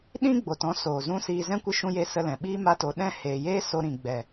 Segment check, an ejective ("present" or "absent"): absent